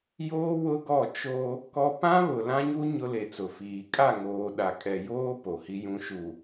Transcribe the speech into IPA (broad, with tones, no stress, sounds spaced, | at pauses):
j oː˦ w ʊ˦ ɡ ɔ˦˨ t͡ʃ o˦ | k ɔ˦ p ã˦ β ʊ˨ l ã˦ ɲ u˦ ɲ ʊ˦ l e˨ t͡s ʊ˨ f iː˨ kʼ a˦˨ ŋ oː˨ ɗ a˨ kʼ ɛ˨ j oː˦ p o˨ h i˦ j ũ˦ ʃ u˨